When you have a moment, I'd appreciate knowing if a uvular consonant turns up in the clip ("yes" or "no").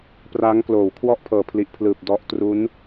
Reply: no